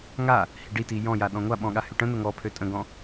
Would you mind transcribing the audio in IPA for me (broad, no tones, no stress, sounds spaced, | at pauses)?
ŋ a | h i ɖ i t i j ɔ̃ j a ɗ ɔ̃ ŋʷ a ɓ ɔ̃ ɠ a h y ʈ ə̃ n̪ ə ŋ ɔ pʰ ø tʼ ə̃ ɡ ɔ̃